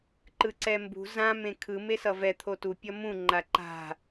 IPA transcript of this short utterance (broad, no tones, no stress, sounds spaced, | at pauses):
ǃ ɯ ǀ ɛ m b ṳ z ã m ẽ kʰ ɯ m e s ʌ v ɛ t̪ʰ o t u pʲ ʌ m ũ ŋ͡ǃ a ǃ a̤